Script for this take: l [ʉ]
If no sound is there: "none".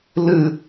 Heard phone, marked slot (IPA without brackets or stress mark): ɨ